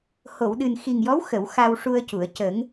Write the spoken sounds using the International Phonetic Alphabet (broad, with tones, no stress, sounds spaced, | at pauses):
h o˨˩˨ w ɗ ɨ˨˩ n x i˨˩ ŋ j ɔ˧˥ w x ə˨˩˨ w x a˧ w ʂ u˧ ə̯ c u˨˩˨ ə̯ c ə˨˩˦ ŋ